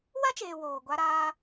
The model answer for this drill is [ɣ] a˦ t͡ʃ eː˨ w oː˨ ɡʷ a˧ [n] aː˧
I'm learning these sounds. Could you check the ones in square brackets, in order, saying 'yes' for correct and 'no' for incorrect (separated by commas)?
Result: no, no